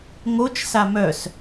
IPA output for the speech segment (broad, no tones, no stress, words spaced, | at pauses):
ŋot͡ʃ samœs